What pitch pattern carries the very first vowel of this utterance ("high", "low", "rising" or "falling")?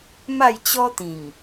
falling